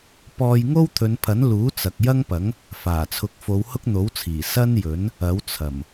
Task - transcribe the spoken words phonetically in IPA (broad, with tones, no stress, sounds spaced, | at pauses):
p ɔː˧ j ŋ o˥ w t̪ʰ ɵ˨˧ n pʰ ɐ˨˥ n l uː˨˥ t͡s ɐ˨ k̚ j ɐ˥ ŋ p ɐ˨˥ ŋ | f aː˨˩ t͡sʰ ʊ˨˥ k̚ f o˨˧ w h ʊ˥ k̚ n̪ o˨˥ w t͡sʰ iː˨˩ s ɐ˥ n j ɵ˨˥ n | ɐ˨˥ w t͡sʰ ɐ˨˩ m